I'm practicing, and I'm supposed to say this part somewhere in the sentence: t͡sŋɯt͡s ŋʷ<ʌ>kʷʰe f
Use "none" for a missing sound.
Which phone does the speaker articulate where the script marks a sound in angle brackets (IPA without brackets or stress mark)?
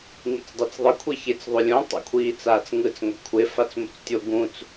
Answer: ʌ